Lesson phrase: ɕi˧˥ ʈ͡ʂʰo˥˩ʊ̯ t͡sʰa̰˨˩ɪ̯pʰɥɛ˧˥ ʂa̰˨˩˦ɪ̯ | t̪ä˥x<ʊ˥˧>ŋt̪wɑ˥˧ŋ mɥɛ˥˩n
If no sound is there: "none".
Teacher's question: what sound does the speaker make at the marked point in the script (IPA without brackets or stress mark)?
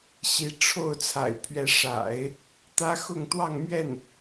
ʊ˥˧